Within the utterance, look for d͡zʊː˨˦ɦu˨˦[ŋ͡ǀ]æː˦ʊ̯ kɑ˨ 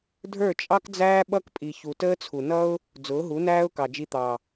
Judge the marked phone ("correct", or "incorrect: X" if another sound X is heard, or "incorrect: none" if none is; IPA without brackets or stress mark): incorrect: n